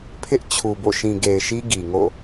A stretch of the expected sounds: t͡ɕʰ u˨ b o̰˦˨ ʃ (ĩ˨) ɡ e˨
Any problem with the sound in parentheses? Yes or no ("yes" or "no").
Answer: no